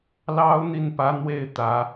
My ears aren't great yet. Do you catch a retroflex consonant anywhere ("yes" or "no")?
no